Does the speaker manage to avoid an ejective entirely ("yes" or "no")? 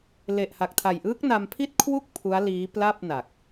yes